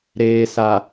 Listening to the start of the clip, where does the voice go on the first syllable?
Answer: low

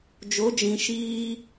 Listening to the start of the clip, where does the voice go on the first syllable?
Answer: rising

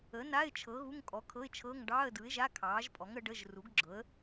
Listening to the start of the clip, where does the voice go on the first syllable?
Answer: rising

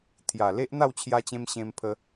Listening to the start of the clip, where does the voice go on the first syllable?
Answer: low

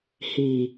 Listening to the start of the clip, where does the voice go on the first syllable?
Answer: low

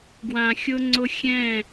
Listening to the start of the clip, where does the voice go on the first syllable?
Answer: low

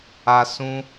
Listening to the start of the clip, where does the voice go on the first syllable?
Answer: high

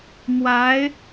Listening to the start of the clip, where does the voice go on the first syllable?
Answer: rising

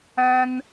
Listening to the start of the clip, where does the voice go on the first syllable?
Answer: high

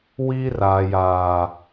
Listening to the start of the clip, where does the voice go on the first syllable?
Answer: high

